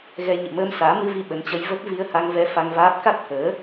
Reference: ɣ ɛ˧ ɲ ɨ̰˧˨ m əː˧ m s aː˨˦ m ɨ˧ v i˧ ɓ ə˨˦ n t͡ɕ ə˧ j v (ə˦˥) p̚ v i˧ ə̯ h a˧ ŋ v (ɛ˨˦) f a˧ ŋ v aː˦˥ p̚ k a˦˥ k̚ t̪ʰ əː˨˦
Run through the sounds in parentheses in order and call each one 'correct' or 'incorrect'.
correct, incorrect: ɛ˧

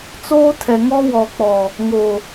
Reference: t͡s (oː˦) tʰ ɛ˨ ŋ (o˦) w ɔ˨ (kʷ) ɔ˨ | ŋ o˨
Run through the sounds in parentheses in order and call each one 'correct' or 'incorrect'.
correct, incorrect: ɔ˦, incorrect: k͡p

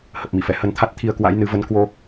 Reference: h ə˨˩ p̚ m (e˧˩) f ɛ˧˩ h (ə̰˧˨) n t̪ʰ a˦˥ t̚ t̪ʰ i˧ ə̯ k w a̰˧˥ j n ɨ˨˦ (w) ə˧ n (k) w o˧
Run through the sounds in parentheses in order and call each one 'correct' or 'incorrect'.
incorrect: i˧˩, incorrect: ə˨˦, incorrect: v, correct

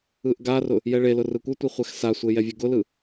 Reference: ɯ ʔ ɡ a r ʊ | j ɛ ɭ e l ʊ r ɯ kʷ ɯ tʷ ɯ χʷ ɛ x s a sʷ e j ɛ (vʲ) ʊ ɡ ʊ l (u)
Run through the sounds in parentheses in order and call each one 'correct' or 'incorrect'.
correct, incorrect: ɯ

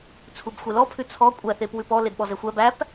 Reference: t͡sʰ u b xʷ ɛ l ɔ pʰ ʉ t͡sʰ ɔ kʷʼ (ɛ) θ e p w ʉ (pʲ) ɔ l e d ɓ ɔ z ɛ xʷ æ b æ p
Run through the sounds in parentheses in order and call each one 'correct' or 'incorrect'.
incorrect: æ, incorrect: p

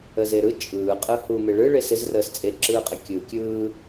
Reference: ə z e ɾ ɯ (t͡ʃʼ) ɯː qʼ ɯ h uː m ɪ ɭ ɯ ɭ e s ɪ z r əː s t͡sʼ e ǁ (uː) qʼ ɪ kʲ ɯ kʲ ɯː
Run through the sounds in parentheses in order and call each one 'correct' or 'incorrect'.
correct, incorrect: ɯː

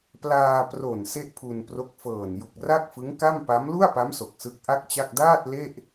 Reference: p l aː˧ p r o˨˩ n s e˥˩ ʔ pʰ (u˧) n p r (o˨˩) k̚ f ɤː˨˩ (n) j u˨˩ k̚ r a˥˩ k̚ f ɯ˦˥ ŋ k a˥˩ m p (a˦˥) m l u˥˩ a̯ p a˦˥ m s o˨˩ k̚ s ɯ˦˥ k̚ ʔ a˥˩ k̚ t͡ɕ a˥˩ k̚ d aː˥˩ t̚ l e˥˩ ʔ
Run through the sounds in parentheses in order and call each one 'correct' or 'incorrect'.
correct, incorrect: o˦˥, correct, correct

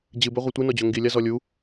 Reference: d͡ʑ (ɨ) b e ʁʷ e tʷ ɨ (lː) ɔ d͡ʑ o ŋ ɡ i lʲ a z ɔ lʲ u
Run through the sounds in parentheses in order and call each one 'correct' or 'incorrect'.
correct, incorrect: n

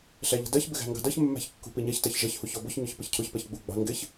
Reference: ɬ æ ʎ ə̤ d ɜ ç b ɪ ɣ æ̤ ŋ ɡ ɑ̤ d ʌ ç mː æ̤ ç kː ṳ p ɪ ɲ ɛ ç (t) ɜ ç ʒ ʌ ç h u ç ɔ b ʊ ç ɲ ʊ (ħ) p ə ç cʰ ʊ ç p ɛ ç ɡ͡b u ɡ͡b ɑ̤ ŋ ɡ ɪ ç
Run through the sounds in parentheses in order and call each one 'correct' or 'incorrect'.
correct, incorrect: ç

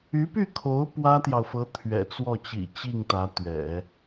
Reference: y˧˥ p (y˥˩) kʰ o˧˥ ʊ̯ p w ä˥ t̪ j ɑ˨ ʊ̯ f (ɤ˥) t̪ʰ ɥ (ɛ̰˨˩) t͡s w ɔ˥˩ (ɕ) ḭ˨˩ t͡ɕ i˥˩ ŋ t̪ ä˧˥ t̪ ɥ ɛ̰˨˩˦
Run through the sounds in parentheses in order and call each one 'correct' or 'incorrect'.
correct, incorrect: ɤ˧˥, correct, incorrect: t͡ɕ

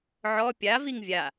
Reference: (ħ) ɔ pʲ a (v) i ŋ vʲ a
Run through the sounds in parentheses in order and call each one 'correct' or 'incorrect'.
incorrect: ʕ, correct

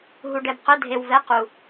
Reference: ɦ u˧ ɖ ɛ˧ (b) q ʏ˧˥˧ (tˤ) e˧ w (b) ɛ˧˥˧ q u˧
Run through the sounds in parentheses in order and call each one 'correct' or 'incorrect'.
correct, incorrect: dʱ, incorrect: v

